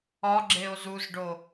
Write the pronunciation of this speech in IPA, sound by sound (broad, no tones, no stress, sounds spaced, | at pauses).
ɒ ɡ͡ǁ e o̯ z u z ɖ o